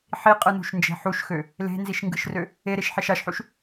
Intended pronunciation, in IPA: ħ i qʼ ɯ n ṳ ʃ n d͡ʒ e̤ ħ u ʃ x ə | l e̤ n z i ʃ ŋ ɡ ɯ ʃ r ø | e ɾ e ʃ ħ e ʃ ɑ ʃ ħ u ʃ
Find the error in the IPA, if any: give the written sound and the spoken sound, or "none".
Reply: ə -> ø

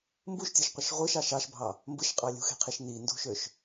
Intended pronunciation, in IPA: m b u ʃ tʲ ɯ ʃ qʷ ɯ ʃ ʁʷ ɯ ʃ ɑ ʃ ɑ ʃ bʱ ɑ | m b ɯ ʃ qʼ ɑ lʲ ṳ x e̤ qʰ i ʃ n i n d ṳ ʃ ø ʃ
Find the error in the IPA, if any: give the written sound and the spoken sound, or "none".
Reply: none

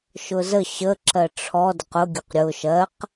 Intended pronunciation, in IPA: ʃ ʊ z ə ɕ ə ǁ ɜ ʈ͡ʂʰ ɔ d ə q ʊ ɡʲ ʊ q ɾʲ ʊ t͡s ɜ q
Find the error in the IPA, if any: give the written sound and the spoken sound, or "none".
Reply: t͡s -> ʃ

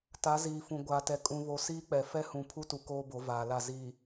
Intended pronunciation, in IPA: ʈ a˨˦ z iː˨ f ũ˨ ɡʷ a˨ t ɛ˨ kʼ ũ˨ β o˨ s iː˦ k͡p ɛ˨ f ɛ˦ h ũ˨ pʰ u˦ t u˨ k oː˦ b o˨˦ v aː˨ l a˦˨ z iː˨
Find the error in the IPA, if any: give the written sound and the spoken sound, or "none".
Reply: ʈ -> t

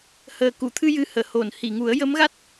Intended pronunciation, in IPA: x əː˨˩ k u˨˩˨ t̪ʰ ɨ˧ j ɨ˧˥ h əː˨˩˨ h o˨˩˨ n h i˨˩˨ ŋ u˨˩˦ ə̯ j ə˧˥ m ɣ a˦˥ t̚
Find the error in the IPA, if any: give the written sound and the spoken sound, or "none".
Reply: x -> h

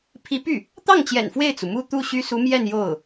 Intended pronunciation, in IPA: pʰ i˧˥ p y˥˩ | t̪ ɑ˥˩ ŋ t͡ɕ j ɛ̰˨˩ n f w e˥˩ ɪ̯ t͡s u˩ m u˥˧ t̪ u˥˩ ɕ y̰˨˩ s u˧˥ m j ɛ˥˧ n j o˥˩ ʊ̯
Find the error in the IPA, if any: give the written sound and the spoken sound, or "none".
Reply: y̰˨˩ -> y˥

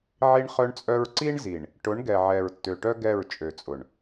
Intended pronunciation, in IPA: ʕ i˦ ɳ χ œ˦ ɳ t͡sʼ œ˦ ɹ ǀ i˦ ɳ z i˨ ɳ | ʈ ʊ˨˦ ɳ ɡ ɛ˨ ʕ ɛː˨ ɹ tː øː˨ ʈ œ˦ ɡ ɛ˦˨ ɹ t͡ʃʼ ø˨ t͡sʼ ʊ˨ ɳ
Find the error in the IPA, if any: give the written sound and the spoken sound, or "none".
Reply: øː˨ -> ø˨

